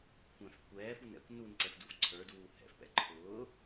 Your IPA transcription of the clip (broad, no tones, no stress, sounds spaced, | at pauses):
kʷ ɛ̃ f kʷ ɛː f u n ɛ̰ kʷ n u n ǀ ɛ f d u f ǀʰ ə˞ d uː h ɛ̰ f p ɛ̰ ǃʰ ʊː